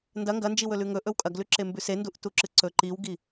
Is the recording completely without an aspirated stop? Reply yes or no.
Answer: yes